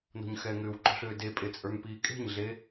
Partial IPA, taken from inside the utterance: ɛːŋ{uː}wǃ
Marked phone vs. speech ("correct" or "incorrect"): incorrect